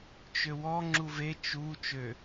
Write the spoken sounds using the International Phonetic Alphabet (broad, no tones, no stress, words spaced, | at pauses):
t͡ʃøwɔ ŋ͡ǁuve t͡ʃu t͡ʃø